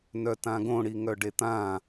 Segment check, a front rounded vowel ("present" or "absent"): present